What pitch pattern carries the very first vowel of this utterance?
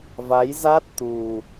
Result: rising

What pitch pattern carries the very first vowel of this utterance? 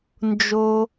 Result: low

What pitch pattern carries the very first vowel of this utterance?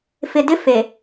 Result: low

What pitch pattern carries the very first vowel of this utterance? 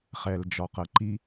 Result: low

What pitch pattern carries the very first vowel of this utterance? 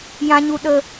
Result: high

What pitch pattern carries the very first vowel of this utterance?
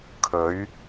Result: rising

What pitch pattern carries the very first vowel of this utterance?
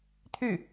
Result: falling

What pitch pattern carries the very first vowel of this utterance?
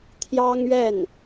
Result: high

